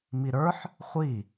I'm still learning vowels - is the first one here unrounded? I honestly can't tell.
yes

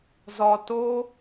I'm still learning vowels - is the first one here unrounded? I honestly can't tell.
no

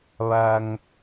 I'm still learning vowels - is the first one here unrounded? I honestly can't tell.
yes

